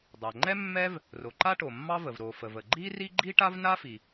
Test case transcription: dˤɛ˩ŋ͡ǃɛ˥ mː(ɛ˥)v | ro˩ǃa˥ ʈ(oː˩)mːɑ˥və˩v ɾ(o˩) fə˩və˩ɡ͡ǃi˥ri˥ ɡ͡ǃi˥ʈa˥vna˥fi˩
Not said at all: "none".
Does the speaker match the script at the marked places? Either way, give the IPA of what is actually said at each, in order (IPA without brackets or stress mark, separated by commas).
ɛ˥, o˩, o˩